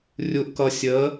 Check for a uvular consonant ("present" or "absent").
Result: absent